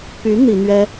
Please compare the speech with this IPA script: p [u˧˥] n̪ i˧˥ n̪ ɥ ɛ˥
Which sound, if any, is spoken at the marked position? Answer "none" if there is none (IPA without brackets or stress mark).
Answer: y˧˥